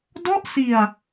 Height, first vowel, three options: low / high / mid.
mid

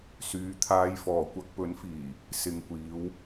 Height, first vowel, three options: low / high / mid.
high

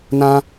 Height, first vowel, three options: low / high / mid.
low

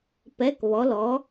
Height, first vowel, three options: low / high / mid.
mid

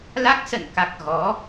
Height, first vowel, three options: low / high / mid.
low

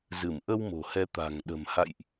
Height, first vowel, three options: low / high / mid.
high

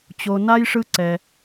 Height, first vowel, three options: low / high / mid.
mid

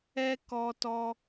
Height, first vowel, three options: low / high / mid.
mid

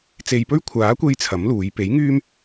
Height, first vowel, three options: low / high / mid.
mid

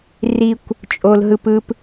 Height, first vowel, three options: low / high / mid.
high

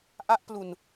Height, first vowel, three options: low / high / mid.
low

